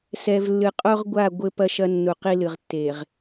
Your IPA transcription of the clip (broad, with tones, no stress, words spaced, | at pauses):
sɛ˨vlːɨ˨qʼo˦ʁɡʷa˦˨ ɡʷɘ˦pɐ˦ʃɐ˦ nːu˨ qi˦lɨ˨ʁ tːe˨ʁ